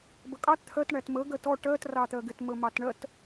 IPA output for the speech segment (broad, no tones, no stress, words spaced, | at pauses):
bəkʼɑt t̪ʰɜt ɳætmə ɡɜtɔ ʈɜt rɑt̪ɜɡɪt məmɑtɳɜt